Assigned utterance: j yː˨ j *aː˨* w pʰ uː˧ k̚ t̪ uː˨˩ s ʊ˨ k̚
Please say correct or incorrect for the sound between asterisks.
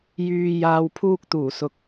correct